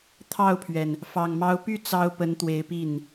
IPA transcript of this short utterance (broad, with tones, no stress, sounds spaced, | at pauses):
t̪ʰ ɑ˥˩ ʊ̯ pʰ ɥ ɛ˩ n | f ɑ˨˩ ŋ m ɑ˧˥ ʊ̯ p y˥˩ t͡s ɑ˥ ʊ̯ p ə˧˥ n t̪ w e˧˥ ɪ̯ p i˥˩ n